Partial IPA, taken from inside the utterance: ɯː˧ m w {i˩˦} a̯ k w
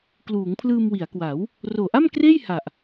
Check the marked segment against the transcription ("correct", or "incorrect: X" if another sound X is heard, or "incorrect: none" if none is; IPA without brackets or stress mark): correct